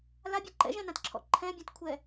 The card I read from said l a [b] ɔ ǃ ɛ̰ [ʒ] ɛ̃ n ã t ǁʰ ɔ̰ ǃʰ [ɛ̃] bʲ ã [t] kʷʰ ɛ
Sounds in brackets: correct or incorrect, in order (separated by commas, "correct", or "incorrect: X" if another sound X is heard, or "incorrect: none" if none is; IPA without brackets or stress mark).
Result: incorrect: bʲ, correct, correct, correct